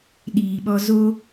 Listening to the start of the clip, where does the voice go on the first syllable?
low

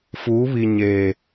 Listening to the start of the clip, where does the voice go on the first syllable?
rising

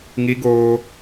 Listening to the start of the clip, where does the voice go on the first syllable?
high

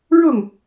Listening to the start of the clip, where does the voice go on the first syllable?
falling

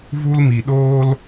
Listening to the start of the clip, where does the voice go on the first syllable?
high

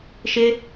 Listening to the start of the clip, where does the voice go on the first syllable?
high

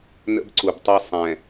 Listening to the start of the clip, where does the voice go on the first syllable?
high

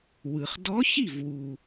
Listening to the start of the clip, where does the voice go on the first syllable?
low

